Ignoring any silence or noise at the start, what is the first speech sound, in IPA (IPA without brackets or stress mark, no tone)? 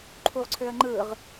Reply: ǃʰ